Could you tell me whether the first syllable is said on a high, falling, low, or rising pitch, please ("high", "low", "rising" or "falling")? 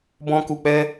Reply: high